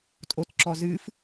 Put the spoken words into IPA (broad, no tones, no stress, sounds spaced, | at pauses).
tʼ o t ǁ ɔ z ɨ f